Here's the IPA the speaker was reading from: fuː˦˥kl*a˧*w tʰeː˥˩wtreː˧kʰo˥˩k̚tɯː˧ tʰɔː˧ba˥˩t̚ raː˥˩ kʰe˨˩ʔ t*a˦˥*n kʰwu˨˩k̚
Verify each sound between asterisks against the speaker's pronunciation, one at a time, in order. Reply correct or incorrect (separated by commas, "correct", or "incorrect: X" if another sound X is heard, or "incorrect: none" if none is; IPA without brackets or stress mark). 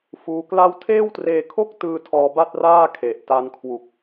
incorrect: a˥˩, incorrect: a˧